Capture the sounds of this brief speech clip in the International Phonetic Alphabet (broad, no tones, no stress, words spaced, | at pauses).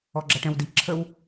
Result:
ɔɡ͡ǁʌʈɛ̃wdi ǁʰəw